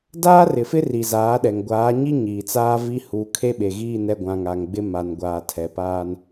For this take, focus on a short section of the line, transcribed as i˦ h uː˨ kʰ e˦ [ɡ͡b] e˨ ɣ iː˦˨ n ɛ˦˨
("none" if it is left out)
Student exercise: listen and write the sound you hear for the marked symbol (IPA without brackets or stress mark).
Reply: ɓ